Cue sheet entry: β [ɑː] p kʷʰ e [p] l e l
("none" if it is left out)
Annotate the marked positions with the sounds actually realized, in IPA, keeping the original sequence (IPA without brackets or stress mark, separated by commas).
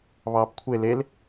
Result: ɑː, none